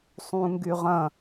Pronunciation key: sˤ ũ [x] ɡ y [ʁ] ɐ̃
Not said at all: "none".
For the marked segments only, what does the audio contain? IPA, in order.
ŋ, ʁ

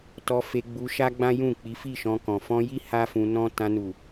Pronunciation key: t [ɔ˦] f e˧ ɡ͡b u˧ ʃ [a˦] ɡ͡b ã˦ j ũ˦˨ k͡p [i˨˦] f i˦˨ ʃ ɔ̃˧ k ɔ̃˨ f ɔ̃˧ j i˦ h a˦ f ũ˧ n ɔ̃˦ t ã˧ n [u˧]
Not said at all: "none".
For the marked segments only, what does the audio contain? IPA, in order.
ɔ˧, a˦, i˨˦, u˨

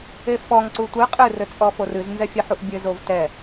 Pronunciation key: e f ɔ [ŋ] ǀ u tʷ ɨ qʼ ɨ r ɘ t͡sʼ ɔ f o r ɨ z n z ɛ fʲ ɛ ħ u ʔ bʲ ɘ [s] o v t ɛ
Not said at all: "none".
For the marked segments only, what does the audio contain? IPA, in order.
ŋ, z

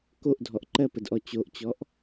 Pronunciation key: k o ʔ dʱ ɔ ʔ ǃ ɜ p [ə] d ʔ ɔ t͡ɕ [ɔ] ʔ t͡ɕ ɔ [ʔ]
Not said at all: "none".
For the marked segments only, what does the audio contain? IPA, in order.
ə, o, ʔ

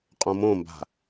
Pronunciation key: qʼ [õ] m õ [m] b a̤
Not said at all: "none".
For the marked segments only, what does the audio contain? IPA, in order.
õ, m

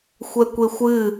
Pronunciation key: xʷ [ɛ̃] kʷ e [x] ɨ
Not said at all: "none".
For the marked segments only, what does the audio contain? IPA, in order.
ɛ, xʷ

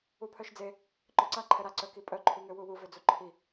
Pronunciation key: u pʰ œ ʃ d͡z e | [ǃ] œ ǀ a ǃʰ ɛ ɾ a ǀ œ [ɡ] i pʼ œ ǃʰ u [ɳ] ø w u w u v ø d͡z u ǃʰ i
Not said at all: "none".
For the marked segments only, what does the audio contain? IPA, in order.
ǃ, k, ŋ

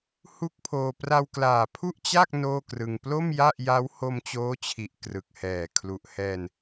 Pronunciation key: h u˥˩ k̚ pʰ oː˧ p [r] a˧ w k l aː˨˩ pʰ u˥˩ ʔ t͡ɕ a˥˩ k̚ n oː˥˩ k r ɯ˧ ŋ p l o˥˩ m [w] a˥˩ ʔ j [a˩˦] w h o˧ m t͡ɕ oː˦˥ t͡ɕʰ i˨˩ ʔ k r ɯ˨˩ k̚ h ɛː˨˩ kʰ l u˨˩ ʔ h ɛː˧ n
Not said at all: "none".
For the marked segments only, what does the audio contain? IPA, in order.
r, j, a˦˥

